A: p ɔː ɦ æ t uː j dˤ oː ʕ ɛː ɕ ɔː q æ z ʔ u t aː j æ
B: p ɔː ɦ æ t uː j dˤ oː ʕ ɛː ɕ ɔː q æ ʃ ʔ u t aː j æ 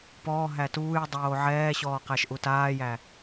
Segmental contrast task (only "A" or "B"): B